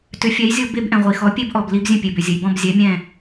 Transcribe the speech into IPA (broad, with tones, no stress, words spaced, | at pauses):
tʏ˩˥fʲɛ˩˥jzʲo˧ be˧bʔɛ̃˩ʁʷi˩xɔ˩˥ pʲe˥bʔɔ˩b li˧bzʲə̃˥˩pʲe˩bʏ˩ zʲə˩jbɔ̃˥˩bzʲɛ˩˥ mʲɛ̃˥˩